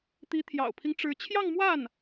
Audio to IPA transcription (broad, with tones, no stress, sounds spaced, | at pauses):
t̪ i˧˥ t̪ʰ j ɑ̰˨˩ ʊ̯ pʰ i˦ ŋ ʈ͡ʂ ɻ̩˧˥ t͡ɕʰ j ɑ˥˧ ŋ m w a˥˩ n